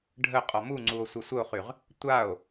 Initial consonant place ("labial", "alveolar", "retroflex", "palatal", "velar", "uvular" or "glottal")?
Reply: retroflex